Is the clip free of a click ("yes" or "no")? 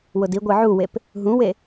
yes